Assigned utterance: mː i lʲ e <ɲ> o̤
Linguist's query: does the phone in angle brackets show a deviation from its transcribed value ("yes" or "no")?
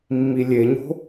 no